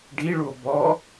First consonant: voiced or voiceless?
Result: voiced